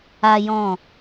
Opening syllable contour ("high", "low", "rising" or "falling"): high